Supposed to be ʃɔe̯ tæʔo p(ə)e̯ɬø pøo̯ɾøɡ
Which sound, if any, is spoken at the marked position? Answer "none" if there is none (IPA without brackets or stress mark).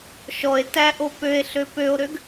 ø